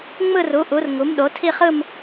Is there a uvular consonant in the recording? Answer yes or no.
yes